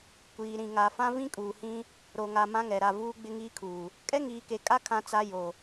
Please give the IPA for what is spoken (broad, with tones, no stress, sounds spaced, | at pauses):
kʷ iː˨ ɾ ĩ˨ ŋ a˨ f ã˦ v ĩ˦ kʼ uː˨ h ĩ˦ | ɾ o˨ ŋ a˨ m ã˦ ŋ ɛ˨ ɾ a˦˨ v uː˦ ɡ͡b ɪ˦ ŋ iː˦ kʰ uː˨ | kʼ ɛ˦ ŋ iː˨ k e˨ kʼ a˦ kʰ ã˦ t͡s a˦ j o˨